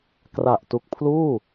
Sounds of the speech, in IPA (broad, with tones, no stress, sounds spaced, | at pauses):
k r a˨˩ ʔ t u˨˩ k̚ pʰ l uː˥˩